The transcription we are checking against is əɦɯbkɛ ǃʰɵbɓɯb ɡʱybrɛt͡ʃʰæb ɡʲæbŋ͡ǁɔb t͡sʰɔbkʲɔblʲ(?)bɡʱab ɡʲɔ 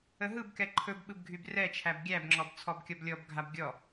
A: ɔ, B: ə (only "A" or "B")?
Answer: A